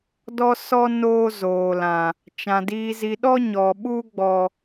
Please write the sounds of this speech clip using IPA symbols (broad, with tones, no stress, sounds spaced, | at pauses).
d ɔ˦ s ɔ˦ n oː˦ z oː˨ l ã˨ | t͡ʃ ã˨ d iː˧ z i˧ ɗ ɔ˦ ɲ ɔ˨ ɓ u˦ ɡ͡b ɔ˦